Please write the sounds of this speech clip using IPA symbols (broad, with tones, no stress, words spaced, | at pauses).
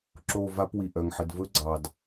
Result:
ǁo˦˨va˦pwi˨ʔœ˨ŋ ħə˨dvɵ˦ɡ͡ǀɑ˨d